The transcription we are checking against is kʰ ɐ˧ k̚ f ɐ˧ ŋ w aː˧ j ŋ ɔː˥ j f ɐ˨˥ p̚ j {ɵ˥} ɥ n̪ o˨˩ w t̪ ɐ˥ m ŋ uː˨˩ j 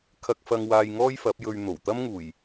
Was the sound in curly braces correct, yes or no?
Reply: no